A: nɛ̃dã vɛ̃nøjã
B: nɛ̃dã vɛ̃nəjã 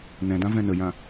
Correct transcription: B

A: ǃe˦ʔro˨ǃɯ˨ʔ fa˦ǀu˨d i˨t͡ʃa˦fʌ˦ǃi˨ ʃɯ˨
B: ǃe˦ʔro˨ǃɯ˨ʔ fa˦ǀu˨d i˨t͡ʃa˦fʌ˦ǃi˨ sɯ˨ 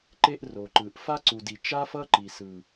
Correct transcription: B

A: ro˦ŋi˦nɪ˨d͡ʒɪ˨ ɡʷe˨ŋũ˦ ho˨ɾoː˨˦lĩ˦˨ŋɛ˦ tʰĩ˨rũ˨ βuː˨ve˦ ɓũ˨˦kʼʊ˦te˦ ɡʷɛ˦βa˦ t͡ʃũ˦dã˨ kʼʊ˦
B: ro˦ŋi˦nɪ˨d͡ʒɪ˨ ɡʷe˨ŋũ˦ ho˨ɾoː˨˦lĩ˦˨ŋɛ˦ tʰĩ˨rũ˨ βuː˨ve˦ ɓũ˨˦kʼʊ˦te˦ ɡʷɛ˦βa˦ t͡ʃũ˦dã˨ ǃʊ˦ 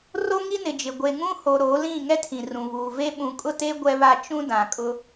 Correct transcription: A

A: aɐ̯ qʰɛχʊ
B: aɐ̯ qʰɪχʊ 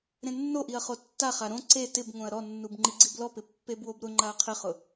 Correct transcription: B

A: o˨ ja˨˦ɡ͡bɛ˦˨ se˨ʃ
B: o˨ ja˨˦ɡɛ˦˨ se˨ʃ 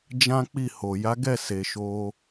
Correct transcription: B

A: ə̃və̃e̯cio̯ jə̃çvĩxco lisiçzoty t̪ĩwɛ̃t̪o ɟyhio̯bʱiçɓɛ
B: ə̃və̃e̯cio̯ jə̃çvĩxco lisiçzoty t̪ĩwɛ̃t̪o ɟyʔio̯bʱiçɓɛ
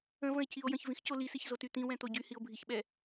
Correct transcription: A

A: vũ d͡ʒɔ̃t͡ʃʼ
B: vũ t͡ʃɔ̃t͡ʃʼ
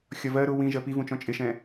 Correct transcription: B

